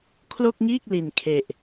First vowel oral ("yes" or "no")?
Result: yes